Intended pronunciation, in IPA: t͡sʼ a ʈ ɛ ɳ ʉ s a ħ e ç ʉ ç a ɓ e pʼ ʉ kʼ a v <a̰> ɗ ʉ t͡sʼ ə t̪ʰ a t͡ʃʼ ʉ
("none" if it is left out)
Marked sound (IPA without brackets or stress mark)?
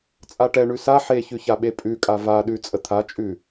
a